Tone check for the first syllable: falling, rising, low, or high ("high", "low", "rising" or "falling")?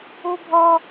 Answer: high